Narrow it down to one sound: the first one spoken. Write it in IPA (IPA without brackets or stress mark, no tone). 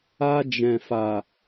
a